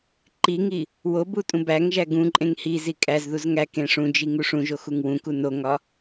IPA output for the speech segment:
ǃ i ŋ i | w o b u tʼ ũ b æ ŋ ʒ æ ɡ ũ ǃʼ ẽ ŋ h i z i kʼ æ z ð u z ŋ æ k ẽ ʂ ũ d͡ʒ i ŋ u ʂ ũ ʒ o x u ŋ w ũ k u n o ŋ ɒ

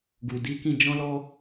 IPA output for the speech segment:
ɡ u˨ d i˨˦ k ĩ˧ d͡ʒ ɔ̃˦ l ɔ˦

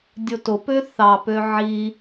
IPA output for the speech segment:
dʲ o t o p ø θ ɑ p ø ʕ i

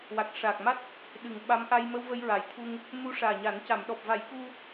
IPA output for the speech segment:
w a˨˩ k̚ ʂ a˨˩ k̚ m a˦˥ t̚ | ɗ ɨ˨˩ ŋ ɓ a˧˥ m ʔ a˧ j m ə˧ w v ə˧ j ɹ a˨˩˨ j t̪ʰ u˧ ŋ | m u˧˥ ʂ aː˨˩ ɲ a˨˩˦ n c a˨˩˨ m ɗ ɔ˨˩ p̚ v a˨˩˦ j k u˧

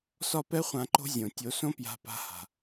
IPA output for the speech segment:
s ɒ˦ p ɛ˦ χʷ ã˧ ǃ o̤˦ zʲ õ˨ tʲ o˨˦ s õ˦ p j a̤˧ p a̤˧ h a̤˨

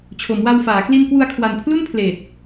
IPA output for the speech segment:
t͡ɕʰ o˩˦ m w a˧ w f aː˩˦ k l i˧ n k w u˧ a̯ kʰ w a˨˩ n pʰ l u˥˩ n pʰ l eː˨˩ t̚

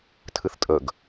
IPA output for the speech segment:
tʰ ɨ θ tʼ ə ɡ

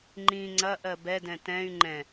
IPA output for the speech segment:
ŋ͡ǃ ĩ ŋ͡ǀ ɐ ʔ ɜ b ɛ d ɛ̃ t ɛ̃ y̯ ŋ͡ǃ ɛ̃

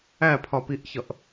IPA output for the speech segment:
æ pʰ ɒ p i ʔ ç ʌ ʔ

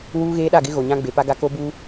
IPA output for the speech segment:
w uː˦ ɣ eː˦ ɗ a˦˨ ɡ ɪ˦ ɣ o˨ ɲ ã˦ ɡ͡b e˨ p a˦ ɡ a˦ k o˦ b uː˦

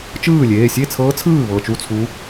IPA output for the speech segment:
t͡ʃ ɯː˥˩ lʲ eː˩˧˩ sʲ e˥˩ t͡sʰ ɤː˧˥ t͡sʰ ɯː˥˩ β ɤ˧˩ t͡ʃ u˥˩ t͡sʰ u˧˥

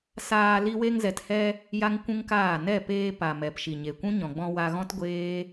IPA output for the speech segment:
s aː˧ l i˧ w e˧ ŋ z ɛ˨ t h ɛ˧ | j a˦ ŋ kʷ ũ˦ ŋ k aː˦˨ n ɛ˦˨ p eː˧ p a˨ m ɛ˨ p ʃ i˨ ɲ e˨ kʷ ũ˦ ɲ ɔ̃˨ ɡ͡b ɔ̃˧ w a˧ ɣ ɔ̃˦ t ɡʷ eː˦

